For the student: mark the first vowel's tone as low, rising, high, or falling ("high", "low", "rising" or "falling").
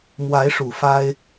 rising